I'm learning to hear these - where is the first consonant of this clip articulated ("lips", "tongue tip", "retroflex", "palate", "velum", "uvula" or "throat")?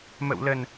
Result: lips